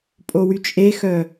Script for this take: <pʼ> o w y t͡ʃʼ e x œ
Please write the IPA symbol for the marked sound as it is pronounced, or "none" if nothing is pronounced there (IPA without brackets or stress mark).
pʼ